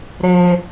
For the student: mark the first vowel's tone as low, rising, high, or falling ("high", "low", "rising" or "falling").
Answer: high